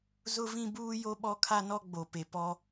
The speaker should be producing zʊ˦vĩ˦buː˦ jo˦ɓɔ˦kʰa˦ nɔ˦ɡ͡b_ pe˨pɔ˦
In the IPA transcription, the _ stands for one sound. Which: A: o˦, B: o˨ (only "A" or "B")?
B